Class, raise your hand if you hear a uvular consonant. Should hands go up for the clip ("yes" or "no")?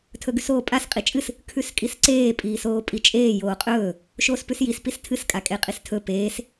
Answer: yes